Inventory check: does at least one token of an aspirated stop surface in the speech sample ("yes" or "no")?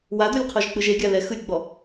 yes